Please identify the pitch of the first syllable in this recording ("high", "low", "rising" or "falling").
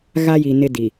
high